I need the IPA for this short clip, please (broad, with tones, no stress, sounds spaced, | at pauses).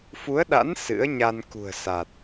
f u˨˦ ə̯ ɗ a̰˧˥ n s ɨ̰˧˥ ə̯ ɲ a˧ n k ṳ˨˩ ə̯ s a˨˩ t̚